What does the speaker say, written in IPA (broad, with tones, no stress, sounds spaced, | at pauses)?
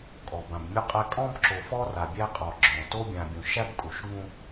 kʼ ɔ˨ b ã˨ b mʲ u˦ qʼ æ˦ kʼ ɔ̃˦ b ǁ o˨ f ɔ˦ r a˨ bʲ æ˦ qʼ ɔ˨ ɡ͡ǁ ɔ̃˨ t o˦ bʲ ã˨ bʲ ũ˨ ʃ æ˦ b kʼ u˨ ʃ ŋ ũ˦